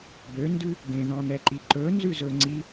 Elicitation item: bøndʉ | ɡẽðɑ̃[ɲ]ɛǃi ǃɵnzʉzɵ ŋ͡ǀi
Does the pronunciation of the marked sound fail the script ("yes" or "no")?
yes